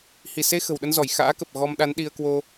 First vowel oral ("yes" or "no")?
yes